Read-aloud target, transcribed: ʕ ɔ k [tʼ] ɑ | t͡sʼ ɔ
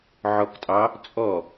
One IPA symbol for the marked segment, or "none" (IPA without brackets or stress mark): tʼ